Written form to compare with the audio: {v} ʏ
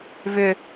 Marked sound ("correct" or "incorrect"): correct